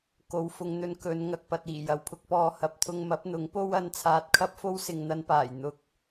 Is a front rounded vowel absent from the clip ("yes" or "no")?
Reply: yes